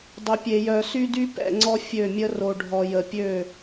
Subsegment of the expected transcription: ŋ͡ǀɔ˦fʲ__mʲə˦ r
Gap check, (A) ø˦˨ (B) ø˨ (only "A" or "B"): A